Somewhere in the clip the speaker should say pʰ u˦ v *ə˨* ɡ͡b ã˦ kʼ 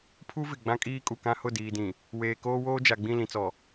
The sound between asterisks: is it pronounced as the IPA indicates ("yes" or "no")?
no